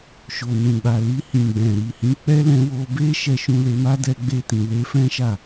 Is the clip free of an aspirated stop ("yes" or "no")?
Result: yes